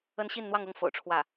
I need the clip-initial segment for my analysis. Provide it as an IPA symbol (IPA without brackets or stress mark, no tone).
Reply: ə